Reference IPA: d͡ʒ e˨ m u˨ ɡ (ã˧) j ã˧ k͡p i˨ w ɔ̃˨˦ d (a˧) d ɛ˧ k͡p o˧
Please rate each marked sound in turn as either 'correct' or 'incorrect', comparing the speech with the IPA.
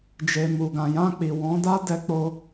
incorrect: ã˨, incorrect: a˦

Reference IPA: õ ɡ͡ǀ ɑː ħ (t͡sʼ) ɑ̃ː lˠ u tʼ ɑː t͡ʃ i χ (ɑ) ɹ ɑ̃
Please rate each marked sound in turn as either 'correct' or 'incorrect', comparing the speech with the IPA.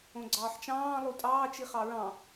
incorrect: t͡ʃ, correct

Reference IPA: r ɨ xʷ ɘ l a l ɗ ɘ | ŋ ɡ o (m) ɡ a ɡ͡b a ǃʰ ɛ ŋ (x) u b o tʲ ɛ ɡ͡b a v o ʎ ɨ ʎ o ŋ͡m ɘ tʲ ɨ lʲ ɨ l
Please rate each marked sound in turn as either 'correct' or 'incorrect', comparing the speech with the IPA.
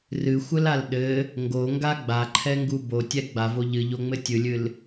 incorrect: ŋ, incorrect: ɡ

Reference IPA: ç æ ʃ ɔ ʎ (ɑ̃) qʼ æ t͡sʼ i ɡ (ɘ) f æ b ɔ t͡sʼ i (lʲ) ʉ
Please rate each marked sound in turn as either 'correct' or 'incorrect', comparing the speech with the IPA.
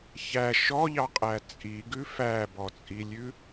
incorrect: ɑ, incorrect: ʉ, correct

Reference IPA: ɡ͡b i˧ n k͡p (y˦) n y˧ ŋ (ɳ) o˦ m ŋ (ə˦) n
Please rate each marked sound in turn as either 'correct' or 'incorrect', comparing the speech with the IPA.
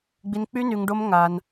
correct, incorrect: ɖ, incorrect: a˦

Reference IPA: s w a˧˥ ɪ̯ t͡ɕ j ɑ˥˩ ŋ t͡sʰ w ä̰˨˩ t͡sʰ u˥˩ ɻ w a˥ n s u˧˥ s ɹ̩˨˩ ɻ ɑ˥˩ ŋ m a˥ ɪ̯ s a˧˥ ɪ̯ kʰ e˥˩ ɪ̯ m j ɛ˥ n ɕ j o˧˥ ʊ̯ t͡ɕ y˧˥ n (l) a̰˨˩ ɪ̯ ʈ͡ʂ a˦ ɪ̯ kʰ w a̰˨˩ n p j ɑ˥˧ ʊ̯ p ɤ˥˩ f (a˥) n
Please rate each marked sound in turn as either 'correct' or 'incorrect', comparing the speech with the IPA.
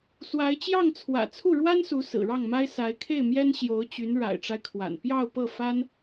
incorrect: ɻ, correct

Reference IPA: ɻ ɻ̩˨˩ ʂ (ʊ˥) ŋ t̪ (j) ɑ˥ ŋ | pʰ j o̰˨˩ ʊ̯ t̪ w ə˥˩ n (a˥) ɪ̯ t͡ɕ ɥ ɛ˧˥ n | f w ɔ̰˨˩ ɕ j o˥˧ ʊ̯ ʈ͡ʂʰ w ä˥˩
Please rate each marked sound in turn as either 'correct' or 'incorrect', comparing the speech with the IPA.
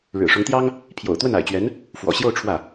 incorrect: ʊ˧˥, correct, incorrect: a̰˨˩

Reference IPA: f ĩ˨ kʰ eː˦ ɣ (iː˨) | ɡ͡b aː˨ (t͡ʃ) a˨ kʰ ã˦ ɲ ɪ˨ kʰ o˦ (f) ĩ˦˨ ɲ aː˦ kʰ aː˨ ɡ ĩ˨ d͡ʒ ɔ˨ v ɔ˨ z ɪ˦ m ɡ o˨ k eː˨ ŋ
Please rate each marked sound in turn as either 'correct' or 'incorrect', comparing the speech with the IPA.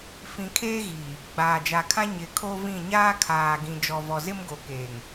correct, incorrect: d͡ʒ, incorrect: v

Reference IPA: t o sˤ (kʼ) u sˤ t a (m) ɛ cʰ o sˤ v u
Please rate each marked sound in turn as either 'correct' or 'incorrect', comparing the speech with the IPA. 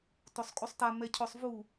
correct, correct

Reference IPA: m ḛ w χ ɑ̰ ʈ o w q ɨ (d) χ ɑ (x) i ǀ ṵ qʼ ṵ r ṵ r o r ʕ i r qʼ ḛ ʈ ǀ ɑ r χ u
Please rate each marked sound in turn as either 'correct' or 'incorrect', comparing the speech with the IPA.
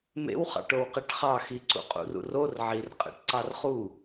incorrect: ʈ, correct

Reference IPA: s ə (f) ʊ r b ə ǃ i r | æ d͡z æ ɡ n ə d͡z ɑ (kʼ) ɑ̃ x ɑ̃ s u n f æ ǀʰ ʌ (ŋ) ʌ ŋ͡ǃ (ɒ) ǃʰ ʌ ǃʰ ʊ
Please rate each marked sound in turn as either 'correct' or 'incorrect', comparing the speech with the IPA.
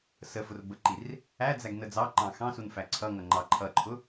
correct, incorrect: ǃ, correct, incorrect: ɑ

